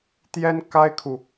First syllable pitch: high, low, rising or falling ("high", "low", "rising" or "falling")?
high